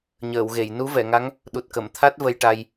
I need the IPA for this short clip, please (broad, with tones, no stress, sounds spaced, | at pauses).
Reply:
ɲ əː˨˩˨ w ɣ e˨˩˨ j n u˧˥ v ɛ˨˩˨ ŋ a˧˥ ŋ | ɗ u˨˩ t̚ k ə˨˩˨ m t̪ʰ a˦˥ t̚ v ə˧ j ʈ a˧ j